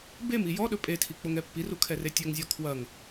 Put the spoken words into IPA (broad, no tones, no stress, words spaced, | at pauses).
bemi jɔ ɗɵpʼetʰi k͡poŋɛpːiru kʰɛretʲɵŋzʲɔ kʰwɐŋ